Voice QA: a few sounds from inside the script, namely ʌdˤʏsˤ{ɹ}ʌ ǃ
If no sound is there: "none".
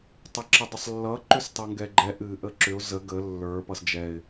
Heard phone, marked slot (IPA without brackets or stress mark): lː